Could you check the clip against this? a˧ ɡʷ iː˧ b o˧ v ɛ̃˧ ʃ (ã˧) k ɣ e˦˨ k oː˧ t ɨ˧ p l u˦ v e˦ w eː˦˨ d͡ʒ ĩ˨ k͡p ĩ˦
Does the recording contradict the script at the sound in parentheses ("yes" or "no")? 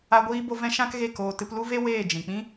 yes